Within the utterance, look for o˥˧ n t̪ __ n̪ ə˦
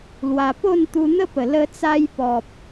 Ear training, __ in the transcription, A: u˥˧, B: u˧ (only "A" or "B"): B